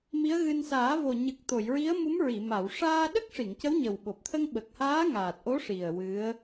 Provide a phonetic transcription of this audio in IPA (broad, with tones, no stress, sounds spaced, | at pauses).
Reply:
m i˧˥ ə̯ ɣ ɨ˧ n s aː˨˩˦ v o˨˩ ɲ ɨ˨˩ k̚ t̪ o˨˩˨ j ɹ i˧˥ ə̯ m u˧˥ m ɹ i˨˩˨ m a˨˩˨ w ʂ aː˧ ɗ ə˦˥ k̚ ʂ i˨˩˨ ŋ c ə˧˥ w ɲ ə˨˩ w ɓ o˨˩ p̚ t̪ʰ ə˧ ŋ ɓ ə˨˩ k̚ h aː˧˥ ŋ aː˨˩ t̚ ʔ o˧˥ ʂ i˨˩ ə̯ w ɨ˧˥ ə̯